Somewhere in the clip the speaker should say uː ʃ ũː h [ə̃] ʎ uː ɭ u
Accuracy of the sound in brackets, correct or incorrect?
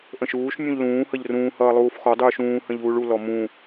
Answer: correct